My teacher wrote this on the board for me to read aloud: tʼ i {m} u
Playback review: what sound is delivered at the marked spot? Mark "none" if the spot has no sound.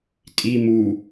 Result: m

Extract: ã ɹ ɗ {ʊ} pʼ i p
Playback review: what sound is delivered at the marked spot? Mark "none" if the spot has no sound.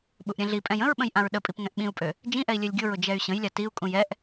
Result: ə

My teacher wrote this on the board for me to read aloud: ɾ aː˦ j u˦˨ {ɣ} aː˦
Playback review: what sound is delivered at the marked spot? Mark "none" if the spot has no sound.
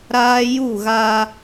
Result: ɣ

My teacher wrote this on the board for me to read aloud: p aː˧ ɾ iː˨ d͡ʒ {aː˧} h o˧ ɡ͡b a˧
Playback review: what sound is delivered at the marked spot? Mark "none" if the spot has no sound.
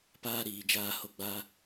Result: aː˧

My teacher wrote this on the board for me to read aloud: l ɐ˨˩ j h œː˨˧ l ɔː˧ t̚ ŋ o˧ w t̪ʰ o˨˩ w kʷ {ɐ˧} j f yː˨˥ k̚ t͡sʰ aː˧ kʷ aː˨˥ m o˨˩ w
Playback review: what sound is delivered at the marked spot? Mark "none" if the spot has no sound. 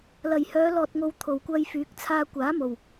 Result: ɐ˧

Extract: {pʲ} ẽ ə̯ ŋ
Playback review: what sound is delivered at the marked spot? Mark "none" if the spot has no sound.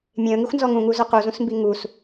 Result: mʲ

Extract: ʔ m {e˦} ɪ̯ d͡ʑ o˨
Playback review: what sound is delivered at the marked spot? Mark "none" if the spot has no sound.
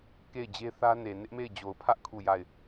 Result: e˦˨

